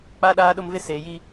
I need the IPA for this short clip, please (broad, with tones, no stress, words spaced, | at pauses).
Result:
k͡pa˦ɗaː˦ɗʊ˦mvɪ˦ seː˨ji˦